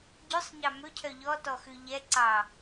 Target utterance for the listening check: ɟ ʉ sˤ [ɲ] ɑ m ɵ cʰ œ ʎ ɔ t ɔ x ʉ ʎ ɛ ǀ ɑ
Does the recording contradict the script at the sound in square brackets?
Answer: no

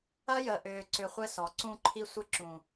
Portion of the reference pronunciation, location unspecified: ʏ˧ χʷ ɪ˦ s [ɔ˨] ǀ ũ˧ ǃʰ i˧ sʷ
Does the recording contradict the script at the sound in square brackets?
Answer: no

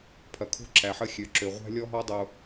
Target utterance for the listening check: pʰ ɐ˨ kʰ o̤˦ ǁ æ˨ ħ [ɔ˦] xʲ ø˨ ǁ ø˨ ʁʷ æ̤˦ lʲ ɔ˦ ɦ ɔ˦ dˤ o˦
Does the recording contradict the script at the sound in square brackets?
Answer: yes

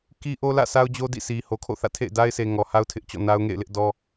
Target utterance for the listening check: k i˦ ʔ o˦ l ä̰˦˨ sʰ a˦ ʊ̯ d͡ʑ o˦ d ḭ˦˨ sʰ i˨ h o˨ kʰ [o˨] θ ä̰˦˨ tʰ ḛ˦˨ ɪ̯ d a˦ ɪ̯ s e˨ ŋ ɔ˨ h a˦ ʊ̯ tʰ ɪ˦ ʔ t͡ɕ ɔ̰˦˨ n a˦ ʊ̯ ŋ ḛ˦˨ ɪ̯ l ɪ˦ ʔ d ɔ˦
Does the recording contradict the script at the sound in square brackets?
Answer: yes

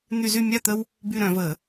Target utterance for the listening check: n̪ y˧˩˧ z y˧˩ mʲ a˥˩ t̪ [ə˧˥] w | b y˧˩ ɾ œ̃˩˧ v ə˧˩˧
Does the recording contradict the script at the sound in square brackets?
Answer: yes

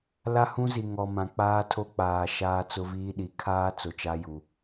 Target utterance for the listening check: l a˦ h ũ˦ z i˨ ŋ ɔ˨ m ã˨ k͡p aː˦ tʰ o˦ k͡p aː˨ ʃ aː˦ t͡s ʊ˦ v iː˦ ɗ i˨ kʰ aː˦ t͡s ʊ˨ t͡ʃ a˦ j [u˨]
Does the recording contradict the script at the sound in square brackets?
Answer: no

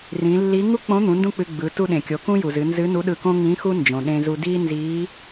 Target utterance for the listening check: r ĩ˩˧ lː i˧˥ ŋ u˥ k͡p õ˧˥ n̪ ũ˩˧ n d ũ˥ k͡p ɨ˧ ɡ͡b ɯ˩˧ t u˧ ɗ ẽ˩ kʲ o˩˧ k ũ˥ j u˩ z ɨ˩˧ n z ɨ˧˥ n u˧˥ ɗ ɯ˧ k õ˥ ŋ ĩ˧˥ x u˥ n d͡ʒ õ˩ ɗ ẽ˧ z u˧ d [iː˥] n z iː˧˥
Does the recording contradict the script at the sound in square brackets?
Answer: no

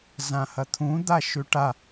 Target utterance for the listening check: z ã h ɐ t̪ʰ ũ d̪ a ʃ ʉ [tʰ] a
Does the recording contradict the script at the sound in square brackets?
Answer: yes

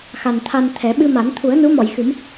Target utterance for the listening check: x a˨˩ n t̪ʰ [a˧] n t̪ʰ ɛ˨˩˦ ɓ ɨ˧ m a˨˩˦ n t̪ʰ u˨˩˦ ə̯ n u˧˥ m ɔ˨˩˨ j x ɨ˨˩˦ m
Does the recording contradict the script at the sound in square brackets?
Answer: no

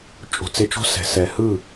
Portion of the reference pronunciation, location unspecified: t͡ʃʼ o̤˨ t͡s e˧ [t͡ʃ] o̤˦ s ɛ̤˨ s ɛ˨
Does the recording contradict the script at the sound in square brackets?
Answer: no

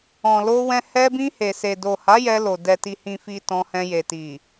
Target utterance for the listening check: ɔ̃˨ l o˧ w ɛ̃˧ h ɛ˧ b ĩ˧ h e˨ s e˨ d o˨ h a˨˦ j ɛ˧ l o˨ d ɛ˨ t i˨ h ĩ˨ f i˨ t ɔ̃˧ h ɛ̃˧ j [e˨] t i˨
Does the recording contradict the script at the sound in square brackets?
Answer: no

